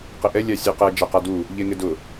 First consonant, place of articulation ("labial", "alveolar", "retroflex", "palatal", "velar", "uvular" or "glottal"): uvular